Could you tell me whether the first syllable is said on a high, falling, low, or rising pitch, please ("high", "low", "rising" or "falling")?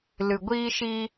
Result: low